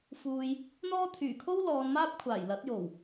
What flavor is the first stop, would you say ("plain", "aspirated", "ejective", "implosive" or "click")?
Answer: aspirated